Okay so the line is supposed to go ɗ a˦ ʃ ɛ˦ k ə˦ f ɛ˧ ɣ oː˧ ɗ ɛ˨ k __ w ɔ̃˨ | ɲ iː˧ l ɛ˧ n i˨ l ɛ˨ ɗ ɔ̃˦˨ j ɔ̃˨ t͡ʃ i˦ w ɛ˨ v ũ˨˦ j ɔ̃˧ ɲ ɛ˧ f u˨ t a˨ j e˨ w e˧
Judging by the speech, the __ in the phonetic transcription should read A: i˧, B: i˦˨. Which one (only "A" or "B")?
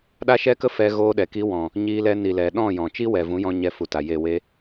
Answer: A